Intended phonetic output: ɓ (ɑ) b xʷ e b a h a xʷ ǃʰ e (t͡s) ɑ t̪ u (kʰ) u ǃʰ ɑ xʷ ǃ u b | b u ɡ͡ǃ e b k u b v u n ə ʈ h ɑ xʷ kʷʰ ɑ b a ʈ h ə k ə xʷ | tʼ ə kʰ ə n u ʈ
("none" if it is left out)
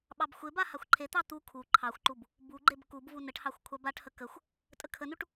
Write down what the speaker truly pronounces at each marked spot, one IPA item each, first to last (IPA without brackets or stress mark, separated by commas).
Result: ɑ, t̪, kʰ